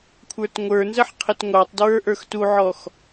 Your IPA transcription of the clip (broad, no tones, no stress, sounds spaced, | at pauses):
kʷʰ ə˞ t ŋʷ ə˞ n z ə ħ qʰ ɪ t ŋʷ ɑ tˤ d ɹ ə˞ ʔ ə˞ x t u ʕ ɔ x